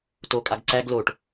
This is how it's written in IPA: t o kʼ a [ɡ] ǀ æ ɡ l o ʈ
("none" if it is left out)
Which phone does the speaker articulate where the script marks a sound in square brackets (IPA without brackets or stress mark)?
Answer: ɡ